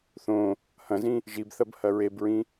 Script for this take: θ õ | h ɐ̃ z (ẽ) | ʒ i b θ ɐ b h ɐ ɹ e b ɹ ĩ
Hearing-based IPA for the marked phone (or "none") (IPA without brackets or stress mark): ĩ